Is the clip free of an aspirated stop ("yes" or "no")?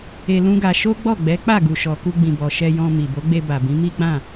yes